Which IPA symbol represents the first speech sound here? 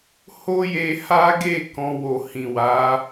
h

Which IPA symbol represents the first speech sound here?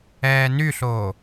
ɛː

